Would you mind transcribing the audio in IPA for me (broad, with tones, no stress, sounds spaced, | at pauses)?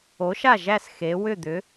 o˩˥ ʃ a˥˩ ʒ æ˥˩ s x e˩˥ w ʏ˥˩ d̪ ʏ˩˥